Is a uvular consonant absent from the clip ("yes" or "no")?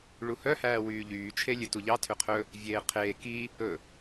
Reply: no